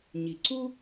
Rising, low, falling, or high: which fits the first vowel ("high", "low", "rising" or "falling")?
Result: low